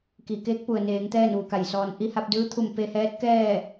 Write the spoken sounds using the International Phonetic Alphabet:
ki˧˩ keː˧˥k̚pu˩ə̯neː˩˧ŋ t̪ɛː˥˨nʋu˧˩ka˧˩jsɔː˧n ʔi˧ha˧p̚dɯː˧˥t̪ʰu˧˩m pe˧hɛː˧˥t̚kɛː˥˨

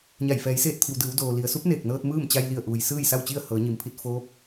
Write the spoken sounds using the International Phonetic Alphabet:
ɲa˧˩j fɛː˩˧jseː˥˨t̚t̪ʰi˩w dɯː˩˧wdoː˩ li˩˧ə̯ su˧˥p̚neː˧˩k̚nɤː˧t̚ mɯː˥˨mt͡ɕa˧jli˧˩ə̯ʔuː˩j sɯː˥˨jsa˥˨wt͡ɕi˥˨ə̯ hɤː˩˧ɲi˩˧mpʰi˧t̚ foː˧˥p̚

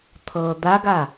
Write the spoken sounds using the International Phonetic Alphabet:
t̪ʰɤd̪aɡa

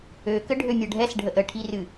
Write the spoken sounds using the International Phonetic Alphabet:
økə ɖʱømʲɤɖʱɛsɖʱəʔ əʈʰirɨ

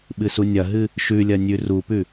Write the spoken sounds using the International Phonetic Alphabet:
ɓɨsunʲɐɦɨ | ʃʉlʲɐ nʲʉrupʉ

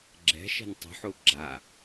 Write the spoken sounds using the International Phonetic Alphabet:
ɡ͡ǁɛ̤ʃɛ̤n tˤṳħu ɡ͡ǁa

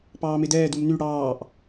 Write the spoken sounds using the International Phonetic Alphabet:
pɑːmedɛː dumny ɽɑːʔ

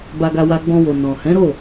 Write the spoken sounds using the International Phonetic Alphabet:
ba˧ɡa˧wa˧ ɡ͡bɔ̃˧wo˨ nɔ̃˨ hɛ̃˨˦ɾo˦˨

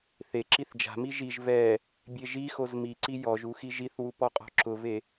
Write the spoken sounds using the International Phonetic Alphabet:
θe ǁiθd͡ʒa̤mi ʒiʒ vɛ | bʲeʒixoz miǀi jɔʒu xiʒiθwu pɔqʼɔ̤ǁʊve

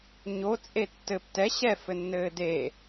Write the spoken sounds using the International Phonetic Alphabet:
ɲo t͡sʼetːɘp tɛ ɕɛfɘnːɘː de

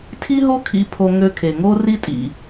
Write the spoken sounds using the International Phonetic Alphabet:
tʰi˥ɦo˥kʰḭ˧ pʰo˧ ŋø˧kʰe˩ ŋo˥ri˥tʼḭ˩

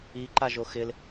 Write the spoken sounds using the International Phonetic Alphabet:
iǃaʒo xɪl

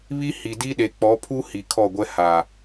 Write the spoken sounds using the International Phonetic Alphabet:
βi˦hi˨ di˦ɗe˨ k͡pɔ˨˦pʰu˦ hi˨kʰɔ˦˨ɡʷɛ˦ ha˨

